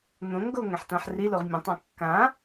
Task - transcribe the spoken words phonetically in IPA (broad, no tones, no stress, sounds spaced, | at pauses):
n̪ õ ŋ ɡ o ŋ ɛ̃ ħ t ã ħ r i l o ʁ mʲ õ tˤ ɑ̃ kː ã